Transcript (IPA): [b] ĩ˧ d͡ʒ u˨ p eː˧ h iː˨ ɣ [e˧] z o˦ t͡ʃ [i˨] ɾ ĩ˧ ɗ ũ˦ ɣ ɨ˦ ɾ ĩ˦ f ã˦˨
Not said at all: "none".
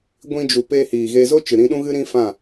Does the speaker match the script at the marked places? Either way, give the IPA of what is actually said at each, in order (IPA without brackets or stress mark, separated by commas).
ɡʷ, e˧, ɨ˨